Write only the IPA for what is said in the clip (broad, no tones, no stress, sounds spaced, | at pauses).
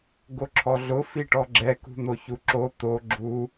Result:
ɡ o ǁʰ ɔ ɮ ʊ f i ʈ ɔ ɡ͡ǁ ɛ k ṳ n̪ o ç u ǁ o t̪ o ɡ͡ǁ u